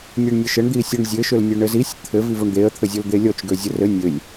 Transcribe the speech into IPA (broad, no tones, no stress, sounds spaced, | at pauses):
nʲ e ɳ nʲ ə ʃ ə ɳ d̪ i sʲ ɔ ɳ zʲ ɘ ʃ ø l nʲ ø ɳ ɘ z i sʲ t̪ʰ ɘ v i v o ɳ d̪ e ə̯ t̪ʰ ɘ zʲ o l d̪ e lʲ ɔ t͡ʃ ɡ ø zʲ ə r ɘ nʲ ɘ lʲ